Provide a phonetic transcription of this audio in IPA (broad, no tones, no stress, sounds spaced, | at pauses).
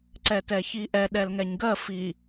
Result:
ǀ ɛ t ɛ ç i ʔ ɛ ɗ ɛ l ŋ ɛ ɲ ɡ ɜ f i